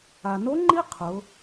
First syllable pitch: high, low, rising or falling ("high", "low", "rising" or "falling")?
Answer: low